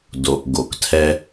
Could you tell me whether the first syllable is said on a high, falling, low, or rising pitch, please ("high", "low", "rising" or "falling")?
low